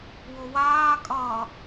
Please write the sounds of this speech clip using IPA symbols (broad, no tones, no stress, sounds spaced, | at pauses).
w o w aː kʼ ʌː